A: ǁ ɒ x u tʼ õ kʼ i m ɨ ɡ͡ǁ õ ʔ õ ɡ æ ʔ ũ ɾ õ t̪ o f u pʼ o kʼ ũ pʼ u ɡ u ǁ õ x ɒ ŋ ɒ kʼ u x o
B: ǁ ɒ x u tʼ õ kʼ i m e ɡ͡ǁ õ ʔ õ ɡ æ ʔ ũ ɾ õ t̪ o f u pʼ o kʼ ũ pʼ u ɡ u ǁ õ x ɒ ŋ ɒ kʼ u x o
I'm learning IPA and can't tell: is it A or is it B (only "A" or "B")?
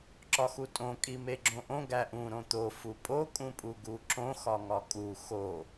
B